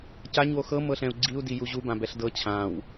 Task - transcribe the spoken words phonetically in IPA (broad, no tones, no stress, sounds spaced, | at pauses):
c a ɲ w o x ɤ m ɤ ɬ ɛ̃ u̯ ɡ͡ǀ i u̯ d i j u ʑ u b ã b ɛ ɬ d ɤ t͡ɕʰ ã w